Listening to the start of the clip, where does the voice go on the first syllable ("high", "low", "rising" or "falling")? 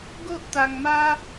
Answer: high